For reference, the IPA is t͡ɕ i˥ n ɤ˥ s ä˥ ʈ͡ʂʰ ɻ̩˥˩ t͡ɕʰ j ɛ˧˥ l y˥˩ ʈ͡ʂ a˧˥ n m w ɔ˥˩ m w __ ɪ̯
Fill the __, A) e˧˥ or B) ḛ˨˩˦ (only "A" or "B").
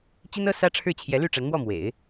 B